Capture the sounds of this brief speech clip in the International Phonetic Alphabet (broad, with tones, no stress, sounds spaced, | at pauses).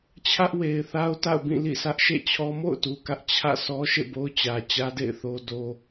t͡ɕʰ ä˦ ʔ w e˨ ɪ̯ θ a˦ ʊ̯ t a̰˦˨ ʊ̯ b ĩ˦˨ l ḭ˦˨ s ä˦ ʔ ʃ ḛ˦˨ t͡ɕʰ ɔ˦ m o̰˦˨ ʊ̯ t u˨ k ä˦ ʔ t͡ɕʰ ä̰˦˨ sʰ ɔ˦ ʃ ḛ˦˨ b o˦ ʊ̯ t͡ɕ ä˨ t͡ɕ ä˦ d ḛ˦˨ ɪ̯ θ o˦ d o˦